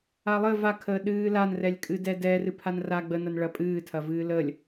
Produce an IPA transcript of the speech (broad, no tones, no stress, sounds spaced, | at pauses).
a lˠ ɘ v a kʰ əː ɗ ɨː l a n r ɛ lʲ kʼ ɨ d ɛ d ɛ r ɨ pʰ a n r a ɡ͡b ə n ɐ n ɭ ɐ pʼ ɨː tʰ ɐ v ɨː l ə lʲ